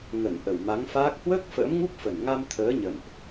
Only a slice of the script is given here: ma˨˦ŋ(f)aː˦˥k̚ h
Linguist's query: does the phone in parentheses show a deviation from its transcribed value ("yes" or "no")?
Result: no